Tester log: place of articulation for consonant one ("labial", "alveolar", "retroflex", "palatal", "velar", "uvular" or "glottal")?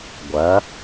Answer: velar